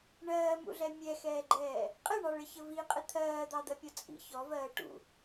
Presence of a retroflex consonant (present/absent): present